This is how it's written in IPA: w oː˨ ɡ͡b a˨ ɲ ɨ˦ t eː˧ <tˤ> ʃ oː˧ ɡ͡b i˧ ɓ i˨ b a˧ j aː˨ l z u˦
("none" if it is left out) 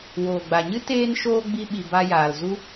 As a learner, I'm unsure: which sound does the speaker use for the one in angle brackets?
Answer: n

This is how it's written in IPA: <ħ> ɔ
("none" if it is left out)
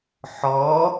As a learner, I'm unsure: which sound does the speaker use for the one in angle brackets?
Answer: ħ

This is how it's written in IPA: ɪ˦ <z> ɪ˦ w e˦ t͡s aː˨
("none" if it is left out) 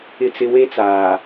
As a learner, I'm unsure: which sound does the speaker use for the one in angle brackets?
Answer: t͡s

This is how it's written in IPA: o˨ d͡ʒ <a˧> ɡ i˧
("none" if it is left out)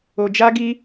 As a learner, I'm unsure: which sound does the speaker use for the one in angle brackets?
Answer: a˧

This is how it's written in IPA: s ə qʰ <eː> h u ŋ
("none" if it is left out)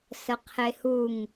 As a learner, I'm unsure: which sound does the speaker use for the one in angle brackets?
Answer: e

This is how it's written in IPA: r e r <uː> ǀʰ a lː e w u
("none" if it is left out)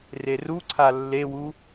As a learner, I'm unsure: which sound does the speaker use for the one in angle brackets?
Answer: u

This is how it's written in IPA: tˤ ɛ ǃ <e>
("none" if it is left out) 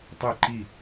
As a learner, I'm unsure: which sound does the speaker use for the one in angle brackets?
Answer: i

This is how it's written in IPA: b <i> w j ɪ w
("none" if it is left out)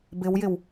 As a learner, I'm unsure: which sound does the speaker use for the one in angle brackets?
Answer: ɪ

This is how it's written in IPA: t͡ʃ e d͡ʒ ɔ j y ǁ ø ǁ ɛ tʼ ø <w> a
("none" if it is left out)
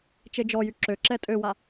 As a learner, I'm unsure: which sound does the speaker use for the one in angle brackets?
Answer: w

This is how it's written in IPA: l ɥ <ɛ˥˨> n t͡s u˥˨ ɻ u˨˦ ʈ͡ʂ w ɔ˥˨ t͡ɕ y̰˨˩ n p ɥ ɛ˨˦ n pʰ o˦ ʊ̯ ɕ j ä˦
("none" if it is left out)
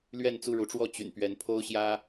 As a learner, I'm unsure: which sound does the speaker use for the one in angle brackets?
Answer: ɛ˥˨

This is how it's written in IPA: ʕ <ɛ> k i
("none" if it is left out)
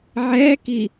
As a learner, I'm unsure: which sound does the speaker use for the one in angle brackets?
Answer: ɛ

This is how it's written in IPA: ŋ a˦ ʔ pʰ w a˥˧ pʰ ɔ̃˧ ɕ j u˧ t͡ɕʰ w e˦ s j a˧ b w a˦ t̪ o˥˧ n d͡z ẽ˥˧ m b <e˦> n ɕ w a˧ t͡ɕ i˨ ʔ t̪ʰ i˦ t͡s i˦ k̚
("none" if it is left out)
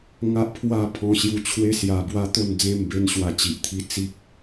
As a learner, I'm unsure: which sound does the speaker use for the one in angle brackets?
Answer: e˦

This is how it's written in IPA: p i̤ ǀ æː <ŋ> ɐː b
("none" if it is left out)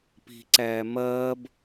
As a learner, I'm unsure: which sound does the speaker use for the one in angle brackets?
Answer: m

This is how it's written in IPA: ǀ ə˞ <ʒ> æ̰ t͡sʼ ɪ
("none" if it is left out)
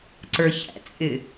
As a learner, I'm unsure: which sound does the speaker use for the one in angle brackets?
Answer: ç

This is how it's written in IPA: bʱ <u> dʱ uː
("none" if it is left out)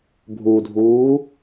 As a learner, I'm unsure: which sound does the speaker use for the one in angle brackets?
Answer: u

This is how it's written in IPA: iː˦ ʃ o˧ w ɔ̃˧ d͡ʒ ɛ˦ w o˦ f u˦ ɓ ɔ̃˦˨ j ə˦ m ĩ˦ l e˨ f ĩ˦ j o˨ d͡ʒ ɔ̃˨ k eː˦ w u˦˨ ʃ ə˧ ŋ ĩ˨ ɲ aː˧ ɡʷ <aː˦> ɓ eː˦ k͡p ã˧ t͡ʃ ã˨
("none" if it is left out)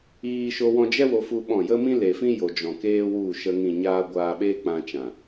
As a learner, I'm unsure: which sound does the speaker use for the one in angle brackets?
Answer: aː˧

